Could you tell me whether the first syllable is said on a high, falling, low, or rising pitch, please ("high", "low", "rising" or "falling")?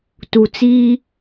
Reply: low